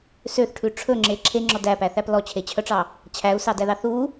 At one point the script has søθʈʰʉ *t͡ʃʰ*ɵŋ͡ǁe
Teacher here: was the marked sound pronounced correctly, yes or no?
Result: no